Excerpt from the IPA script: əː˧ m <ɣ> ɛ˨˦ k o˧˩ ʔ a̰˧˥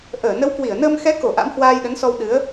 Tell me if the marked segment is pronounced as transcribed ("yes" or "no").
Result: no